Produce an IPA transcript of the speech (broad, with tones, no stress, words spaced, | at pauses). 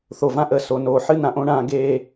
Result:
θo˨vã˦ʔəː˨ so˨noː˨ ħɨ˦nã˨ʔõ˦ɳãː˧ ɡeː˧